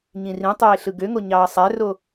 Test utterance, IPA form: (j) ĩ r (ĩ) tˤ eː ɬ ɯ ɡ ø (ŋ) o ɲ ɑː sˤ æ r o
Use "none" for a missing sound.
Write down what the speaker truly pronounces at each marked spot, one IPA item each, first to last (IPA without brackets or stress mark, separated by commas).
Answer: ɲ, ĩ, ŋ